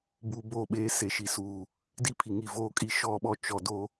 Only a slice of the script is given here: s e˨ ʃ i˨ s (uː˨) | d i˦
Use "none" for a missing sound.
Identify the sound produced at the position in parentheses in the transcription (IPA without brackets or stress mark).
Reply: uː˨